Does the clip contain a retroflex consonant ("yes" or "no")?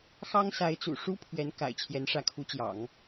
yes